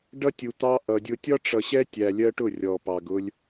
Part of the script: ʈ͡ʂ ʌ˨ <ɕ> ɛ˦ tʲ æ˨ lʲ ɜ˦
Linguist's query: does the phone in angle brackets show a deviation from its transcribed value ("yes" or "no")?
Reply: no